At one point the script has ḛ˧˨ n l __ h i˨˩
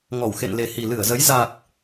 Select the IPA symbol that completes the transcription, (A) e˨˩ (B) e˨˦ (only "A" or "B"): A